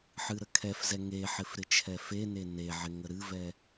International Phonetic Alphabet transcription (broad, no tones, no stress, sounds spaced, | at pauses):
ħ ɨ ɾ ə kʰ ɛ f z ɛ ŋ e ħ ɪ f ɾ ɪ t͡ʃʰ ɛ f e n e n e ʕ ɪ ŋ ə ɾ ɨ v ɛ